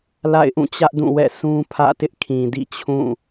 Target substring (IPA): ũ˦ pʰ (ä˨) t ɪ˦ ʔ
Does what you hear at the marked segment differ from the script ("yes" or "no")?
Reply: yes